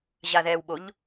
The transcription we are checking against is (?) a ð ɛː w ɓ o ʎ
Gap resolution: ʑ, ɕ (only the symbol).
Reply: ʑ